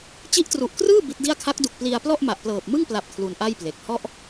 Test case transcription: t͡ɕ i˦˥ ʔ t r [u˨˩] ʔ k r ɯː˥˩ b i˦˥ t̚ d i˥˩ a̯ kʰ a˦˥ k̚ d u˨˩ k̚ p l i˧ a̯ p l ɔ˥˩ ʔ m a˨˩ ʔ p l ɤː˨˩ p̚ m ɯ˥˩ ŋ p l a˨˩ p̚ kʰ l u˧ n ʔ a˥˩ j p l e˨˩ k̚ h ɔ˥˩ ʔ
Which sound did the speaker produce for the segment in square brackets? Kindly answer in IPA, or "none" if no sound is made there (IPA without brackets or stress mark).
u˨˩